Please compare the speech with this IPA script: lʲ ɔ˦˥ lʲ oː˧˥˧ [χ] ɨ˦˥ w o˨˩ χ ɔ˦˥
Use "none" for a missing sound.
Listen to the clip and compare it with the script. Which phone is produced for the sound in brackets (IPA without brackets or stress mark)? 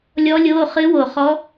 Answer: χ